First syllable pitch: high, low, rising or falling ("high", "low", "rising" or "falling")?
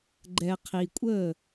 low